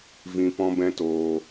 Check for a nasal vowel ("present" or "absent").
present